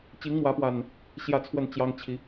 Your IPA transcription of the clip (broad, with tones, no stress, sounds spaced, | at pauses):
t͡ɕ i˨˦ ŋ m w ä˨˦ p w a˨˩ n | ɕ j ä˥˨ t͡sʰ w ə˥˨ n t͡ɕ j ɑ˦ ŋ t͡ɕʰ i˨˦